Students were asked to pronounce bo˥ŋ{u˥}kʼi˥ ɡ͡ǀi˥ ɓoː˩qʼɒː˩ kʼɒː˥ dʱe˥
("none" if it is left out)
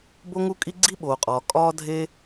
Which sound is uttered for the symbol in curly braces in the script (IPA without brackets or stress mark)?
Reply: u˥